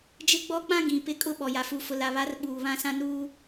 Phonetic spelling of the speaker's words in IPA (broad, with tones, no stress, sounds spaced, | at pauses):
d͡ʒ ɪ˦ ɡ͡b ɔ˦ k͡p ã˦ ɡ ĩ˨ p ɪ˦ kʼ ʊ˦ ɓ ɔ˨ j a˨ f u˨ f ʊ˨ l a˨ β a˨˦ r ɓ uː˨ β ã˦ s ã˦ n uː˦